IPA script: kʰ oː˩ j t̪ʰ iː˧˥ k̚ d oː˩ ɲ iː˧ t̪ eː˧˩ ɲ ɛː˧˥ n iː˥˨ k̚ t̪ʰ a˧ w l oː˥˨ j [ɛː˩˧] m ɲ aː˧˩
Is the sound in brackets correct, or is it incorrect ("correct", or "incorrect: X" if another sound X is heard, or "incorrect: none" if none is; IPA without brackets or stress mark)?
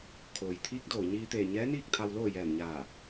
incorrect: ɛː˧˩